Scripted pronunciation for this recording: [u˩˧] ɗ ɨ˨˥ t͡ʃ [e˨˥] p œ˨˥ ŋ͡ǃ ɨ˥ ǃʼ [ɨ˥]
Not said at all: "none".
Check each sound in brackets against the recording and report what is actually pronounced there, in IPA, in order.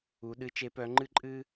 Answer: u˩˧, e˨˥, ɨ˥

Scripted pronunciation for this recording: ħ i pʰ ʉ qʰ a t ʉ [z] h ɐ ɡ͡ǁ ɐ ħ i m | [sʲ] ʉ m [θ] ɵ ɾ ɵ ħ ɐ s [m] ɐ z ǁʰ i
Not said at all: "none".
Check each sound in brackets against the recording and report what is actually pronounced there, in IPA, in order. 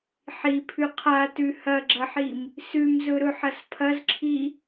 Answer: none, s, z, pʰ

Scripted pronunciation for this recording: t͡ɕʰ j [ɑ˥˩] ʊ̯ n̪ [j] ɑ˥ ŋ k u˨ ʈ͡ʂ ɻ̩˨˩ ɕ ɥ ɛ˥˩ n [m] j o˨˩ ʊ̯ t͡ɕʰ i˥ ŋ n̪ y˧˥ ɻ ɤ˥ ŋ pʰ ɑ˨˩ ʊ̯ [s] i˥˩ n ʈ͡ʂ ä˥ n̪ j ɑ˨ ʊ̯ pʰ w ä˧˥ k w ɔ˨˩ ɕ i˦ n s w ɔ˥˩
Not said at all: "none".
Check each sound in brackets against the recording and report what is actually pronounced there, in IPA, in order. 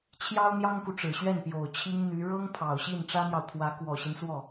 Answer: ɑ˥, j, p, ɕ

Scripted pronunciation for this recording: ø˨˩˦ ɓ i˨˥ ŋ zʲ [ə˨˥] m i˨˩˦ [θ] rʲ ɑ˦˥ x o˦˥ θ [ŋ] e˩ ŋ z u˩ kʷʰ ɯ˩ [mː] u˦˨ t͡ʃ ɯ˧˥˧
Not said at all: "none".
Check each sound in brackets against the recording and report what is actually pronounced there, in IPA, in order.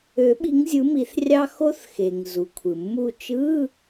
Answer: ɯ˨˥, θ, x, mː

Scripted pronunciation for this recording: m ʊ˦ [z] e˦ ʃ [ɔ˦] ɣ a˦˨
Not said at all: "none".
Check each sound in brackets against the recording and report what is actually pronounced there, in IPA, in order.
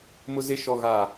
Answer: z, ɔ˦

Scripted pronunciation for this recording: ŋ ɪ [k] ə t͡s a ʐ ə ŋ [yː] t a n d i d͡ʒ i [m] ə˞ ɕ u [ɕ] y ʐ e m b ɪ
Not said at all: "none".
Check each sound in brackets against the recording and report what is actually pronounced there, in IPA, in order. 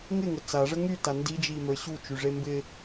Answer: ŋ, y, m, t͡ʃ

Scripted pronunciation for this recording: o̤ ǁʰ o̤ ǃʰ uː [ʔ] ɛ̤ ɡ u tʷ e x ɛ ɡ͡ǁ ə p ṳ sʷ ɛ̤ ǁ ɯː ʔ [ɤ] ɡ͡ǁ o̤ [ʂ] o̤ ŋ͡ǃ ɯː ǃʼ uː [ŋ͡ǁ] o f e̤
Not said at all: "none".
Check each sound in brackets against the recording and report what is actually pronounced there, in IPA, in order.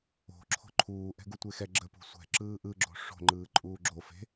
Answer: ʔ, ɯ, ʂ, ɡ͡ǁ

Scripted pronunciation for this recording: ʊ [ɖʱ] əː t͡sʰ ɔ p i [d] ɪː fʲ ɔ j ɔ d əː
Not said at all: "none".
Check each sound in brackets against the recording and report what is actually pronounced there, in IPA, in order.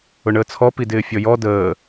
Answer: ɳ, d

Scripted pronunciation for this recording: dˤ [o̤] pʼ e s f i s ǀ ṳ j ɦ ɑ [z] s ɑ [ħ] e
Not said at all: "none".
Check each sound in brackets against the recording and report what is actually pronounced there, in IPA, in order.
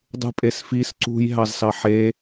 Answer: ṳ, z, ħ

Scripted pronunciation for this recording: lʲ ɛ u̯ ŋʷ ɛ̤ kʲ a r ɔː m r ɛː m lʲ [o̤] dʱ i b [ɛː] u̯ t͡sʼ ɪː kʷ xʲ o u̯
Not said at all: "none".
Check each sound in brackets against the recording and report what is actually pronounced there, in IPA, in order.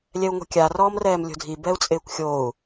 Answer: o̤, ɛ

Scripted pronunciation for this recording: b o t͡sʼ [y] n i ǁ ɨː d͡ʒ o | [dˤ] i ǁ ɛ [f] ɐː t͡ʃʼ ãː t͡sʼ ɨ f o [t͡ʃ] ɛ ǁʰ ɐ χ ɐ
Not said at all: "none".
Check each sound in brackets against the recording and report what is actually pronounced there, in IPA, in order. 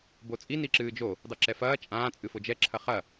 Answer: i, dˤ, f, d͡ʒ

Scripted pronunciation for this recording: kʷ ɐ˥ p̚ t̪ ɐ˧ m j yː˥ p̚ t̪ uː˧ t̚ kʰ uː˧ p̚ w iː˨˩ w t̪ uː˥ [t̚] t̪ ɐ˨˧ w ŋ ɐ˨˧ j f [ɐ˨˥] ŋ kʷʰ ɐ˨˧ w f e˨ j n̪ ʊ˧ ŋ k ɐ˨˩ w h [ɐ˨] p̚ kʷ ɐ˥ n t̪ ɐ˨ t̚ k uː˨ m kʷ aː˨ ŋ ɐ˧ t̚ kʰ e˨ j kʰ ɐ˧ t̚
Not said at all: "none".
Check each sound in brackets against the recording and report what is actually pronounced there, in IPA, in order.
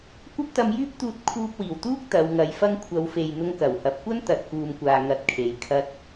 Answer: k̚, ɐ˥, ɐ˨

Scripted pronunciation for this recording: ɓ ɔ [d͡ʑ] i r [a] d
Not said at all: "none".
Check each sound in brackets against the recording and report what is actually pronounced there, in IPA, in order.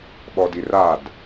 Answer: d, a

